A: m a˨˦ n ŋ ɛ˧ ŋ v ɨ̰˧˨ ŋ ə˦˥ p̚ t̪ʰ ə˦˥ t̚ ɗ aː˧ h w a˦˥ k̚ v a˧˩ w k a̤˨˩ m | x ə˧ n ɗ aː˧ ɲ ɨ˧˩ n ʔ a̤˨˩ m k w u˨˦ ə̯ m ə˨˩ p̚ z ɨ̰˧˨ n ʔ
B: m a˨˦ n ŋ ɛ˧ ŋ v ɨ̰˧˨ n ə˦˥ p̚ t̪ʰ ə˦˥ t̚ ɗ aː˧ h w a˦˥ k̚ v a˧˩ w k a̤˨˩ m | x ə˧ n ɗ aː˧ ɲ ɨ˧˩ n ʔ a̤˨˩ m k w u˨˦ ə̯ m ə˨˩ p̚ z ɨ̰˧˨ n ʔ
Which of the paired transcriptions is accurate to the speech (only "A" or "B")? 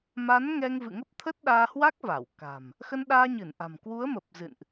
A